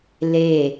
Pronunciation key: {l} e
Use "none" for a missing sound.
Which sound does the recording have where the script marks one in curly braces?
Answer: l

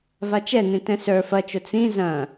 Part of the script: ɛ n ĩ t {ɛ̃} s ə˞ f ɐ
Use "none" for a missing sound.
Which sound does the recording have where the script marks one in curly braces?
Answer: ɛ̃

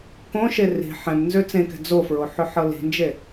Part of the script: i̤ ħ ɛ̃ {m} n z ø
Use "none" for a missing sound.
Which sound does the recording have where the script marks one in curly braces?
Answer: m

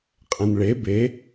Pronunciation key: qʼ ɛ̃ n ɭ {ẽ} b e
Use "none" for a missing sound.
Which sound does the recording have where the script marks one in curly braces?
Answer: e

